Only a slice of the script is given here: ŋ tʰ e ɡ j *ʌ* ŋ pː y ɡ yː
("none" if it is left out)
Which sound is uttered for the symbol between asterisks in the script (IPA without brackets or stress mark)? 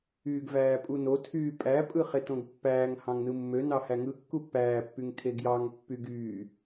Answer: ɑ